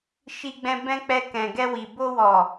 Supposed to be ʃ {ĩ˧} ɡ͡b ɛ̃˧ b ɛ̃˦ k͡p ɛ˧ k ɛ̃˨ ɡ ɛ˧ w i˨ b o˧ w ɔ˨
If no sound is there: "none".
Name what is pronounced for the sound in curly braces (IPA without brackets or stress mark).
i˧